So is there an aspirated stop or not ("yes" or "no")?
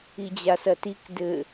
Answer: no